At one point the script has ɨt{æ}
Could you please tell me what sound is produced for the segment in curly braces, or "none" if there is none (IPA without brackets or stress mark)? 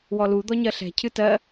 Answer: ɜ